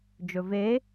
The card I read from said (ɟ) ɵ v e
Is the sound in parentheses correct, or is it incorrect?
incorrect